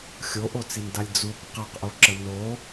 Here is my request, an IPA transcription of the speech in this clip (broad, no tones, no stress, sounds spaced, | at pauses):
xʲ o ʔ o t͡s i n d a lʲ d͡z u kʷ q a q ʔ o ǁ ə n o